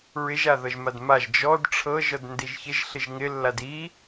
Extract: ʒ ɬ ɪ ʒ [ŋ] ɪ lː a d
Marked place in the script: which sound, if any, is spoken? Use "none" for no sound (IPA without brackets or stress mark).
ŋ